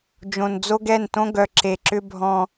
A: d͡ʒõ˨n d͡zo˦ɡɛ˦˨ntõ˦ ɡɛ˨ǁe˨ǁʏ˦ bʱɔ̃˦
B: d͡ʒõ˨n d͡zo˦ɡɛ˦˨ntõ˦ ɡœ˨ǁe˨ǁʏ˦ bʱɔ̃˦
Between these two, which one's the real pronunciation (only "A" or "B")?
B